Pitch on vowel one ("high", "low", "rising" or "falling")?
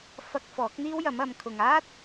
high